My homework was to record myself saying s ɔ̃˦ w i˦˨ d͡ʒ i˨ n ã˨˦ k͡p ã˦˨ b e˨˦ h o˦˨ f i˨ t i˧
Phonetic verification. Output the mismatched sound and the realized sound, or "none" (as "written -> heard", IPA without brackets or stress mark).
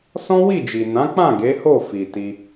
b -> ɡ